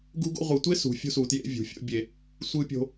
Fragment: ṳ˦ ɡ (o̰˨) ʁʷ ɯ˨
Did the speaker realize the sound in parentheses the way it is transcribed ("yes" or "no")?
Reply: no